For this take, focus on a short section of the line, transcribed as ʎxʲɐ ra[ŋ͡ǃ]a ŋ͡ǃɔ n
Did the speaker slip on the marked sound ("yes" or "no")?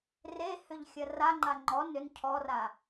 no